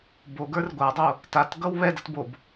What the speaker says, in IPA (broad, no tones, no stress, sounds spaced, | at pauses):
b o ɡ ə˞ r ɡʷ a dˤ o | t a t ɡ ʌ w β ɛ d ʌ t b o b